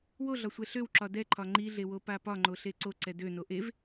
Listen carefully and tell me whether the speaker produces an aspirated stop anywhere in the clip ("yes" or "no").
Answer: yes